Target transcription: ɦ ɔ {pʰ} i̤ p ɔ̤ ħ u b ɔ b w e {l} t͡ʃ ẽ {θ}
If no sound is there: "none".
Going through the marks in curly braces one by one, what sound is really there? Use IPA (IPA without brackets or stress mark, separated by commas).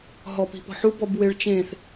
p, ɭ, θ